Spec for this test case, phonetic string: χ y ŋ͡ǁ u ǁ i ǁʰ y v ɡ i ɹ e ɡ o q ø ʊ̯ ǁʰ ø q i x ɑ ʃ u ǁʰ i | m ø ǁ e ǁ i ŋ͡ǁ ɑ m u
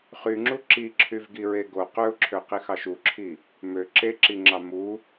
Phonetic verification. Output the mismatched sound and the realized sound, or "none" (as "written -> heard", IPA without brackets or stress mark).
none